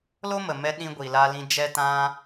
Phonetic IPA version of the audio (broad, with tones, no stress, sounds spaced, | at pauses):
l o˦ m ə˨ m ɛ˧ ɗ ĩ˧ ɡʷ i˨ l a˧ l ĩ˧ d͡ʒ ɛ˧ t ã˧